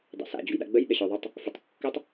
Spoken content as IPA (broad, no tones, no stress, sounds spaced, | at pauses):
dˤ a̰ s a̰ d͡ʑ ṵ j ɗ a̰ ɡ͡b ə j ɗ ə ɕ œ ðˤ œ tˤ | f œ tˤ kː œ tˤ